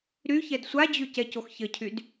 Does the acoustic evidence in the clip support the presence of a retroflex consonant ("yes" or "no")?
no